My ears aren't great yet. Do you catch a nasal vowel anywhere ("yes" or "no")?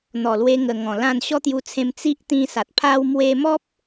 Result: yes